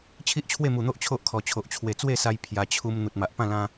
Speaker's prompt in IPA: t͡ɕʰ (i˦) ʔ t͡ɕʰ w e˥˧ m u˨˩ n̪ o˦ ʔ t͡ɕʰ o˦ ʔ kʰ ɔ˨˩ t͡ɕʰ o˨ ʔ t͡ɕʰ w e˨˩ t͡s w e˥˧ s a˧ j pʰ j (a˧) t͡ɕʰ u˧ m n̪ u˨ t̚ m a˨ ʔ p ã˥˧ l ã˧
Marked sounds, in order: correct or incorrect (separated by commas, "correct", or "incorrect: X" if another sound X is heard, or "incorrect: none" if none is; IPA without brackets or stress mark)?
correct, correct